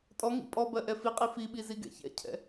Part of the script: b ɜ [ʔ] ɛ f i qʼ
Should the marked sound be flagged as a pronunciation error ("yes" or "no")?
no